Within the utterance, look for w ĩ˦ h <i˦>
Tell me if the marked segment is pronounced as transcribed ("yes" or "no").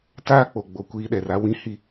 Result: yes